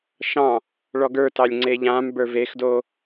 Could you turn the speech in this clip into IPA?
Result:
ʃ ɑ̃ | ɭ ɔ ɡ ə˞ t ɑ lʲ ŋ͡ǀ e ʎ ã m b ə˞ v e x d o

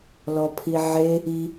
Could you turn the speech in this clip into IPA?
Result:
l ɔ pʰ i ʕ e | i

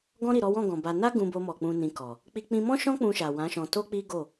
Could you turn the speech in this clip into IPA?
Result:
ɡ ɔ̃˧ ɾ i˨ ɾ ɔ˨˦ w ɔ̃˦˨ ɡ ɔ̃˨ b a˧ n a˦ ɡ ũ˧ b o˧ m ɔ˨ k͡p ũ˧ n ĩ˧ k ɔ˨ | k͡p i˧ k͡p ĩ˧ m ɔ̃˦ ʃ ɔ̃˦ k͡p ũ˧ ʃ a˨ w ã˨˦ ʃ ɔ̃˧ t o˦ k͡p i˦ ɡ o˦˨

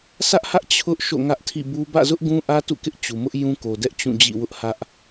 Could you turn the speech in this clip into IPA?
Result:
s ä˦ ʔ h ä˦ ʔ t͡ɕʰ ʊ˦ ʔ ʃ o̰˦˨ ŋ ä˦ ʔ tʰ ḭ˦˨ b u˦ b ä̰˦˨ z ʊ˦ ʔ ɡ ũ˦ ʔ ä˦ t ṵ˦˨ k ɪ˦ ʔ t͡ɕ u˨ m ʊ˦ ʔ j ũ˦ k o˨ d ɛ˦ ʔ t͡ɕ ũ˦˨ d͡ʑ ḭ˦˨ w ʊ˦ ʔ h ä˦ ʔ

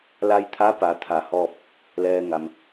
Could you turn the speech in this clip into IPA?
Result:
l a˧ j t̪ʰ a˧˥ p a˩˧ t̪ʰ a˧˩ h ɔː˥˨ p̚ | l ɛː˧ ŋ a˩ m

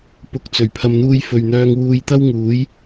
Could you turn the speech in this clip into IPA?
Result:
p ʊ˨˥ k̚ t͡s ɵ˨˩ ɥ pʰ ɐ˨ m n̪ uː˧ j f ɵ˨ ɥ n̪ œː˧ ŋ w uː˧ j t̪ ɐ˥ w ŋ uː˨˥ j

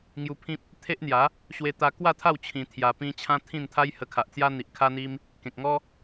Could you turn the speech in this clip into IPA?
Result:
ŋ j u˧ pʰ ĩ˦ p̚ | t̪ʰ e˦ ʔ n̪ j a˨˦ | ɕ w e˧ t̪ a˧ k w a˥˧ t̪ʰ a˥˧ w t͡ɕʰ ĩ˧ t̪ʰ j a˧ p ĩ˦ t͡ɕʰ ã˦ t̪ʰ ĩ˥˧ n t̪ʰ a˦ j h ə˧ kʰ a˨ ʔ t͡s j a˦ n̪ i˨ ʔ kʰ a˦ n̪ i˦ m | k ẽ˨ k̚ ŋ ɔ˦

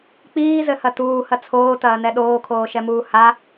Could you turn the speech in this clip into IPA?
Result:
k͡p iː z ɘ h ɐ t uː h ɐ t͡sʰ oː t ɐː n ɛ ɗ oː kʰ oː ʃ ɛ m uː h a

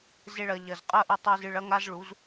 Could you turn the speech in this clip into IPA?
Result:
z e˧ ɭ ɐ˨ ʎ ɐ˨ z qʼ ɐ˦ ʔ ɨ˧ tˤ i˧ z ɨ˧ ɭ ɐ˦ ŋ a˦ z ɭ u˨˦ z

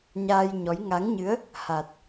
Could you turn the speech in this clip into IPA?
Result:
ɲ aː˧ j ɲ ɔ˨˦ j ŋ a˨˦ ŋ ɲ ɨ˨˦ ə̯ | h a˨˩ t̚

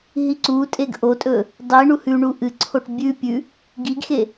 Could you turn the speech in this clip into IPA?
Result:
ɦ i ǀ u tʼ e ɡ ʔ o tʼ ɵ | dˤ i ɳ u h ʉ ɳ u ʔ ɨ ǀʰ o ʈ bʲ ʉ pʲ ʉ | ɡ i ɡ x e

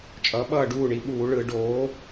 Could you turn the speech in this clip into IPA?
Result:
t͡ʃʼ ʌː˩˥ ɓ ʌː˥˩ ɖ uː˥˩ ɳ i˩˥ ɓ uː˨˩˦ ɭ ɯ˨˩˦ ɖ oː˩˥

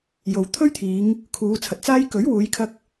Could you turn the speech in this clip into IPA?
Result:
j o˨ w t̪ʰ ɵ˥ ɥ t̪ʰ iː˨˧ ŋ | kʰ uː˨˧ t͡sʰ ɐ˨ t̚ t͡s aː˥ j k ɵ˨˥ ɥ w uː˨˧ j kʰ ɐ˧ k̚

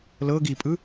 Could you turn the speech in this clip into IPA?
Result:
l ɤ ɡ i pʼ ɯ

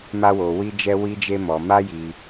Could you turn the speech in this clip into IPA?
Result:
m a˦ w o˧ w i˦ d͡ʒ ɛ˦ w i˦ d͡ʒ e˦ m ɔ˧ m a˦ j i˧

